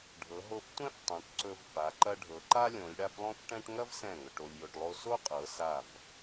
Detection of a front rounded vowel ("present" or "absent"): absent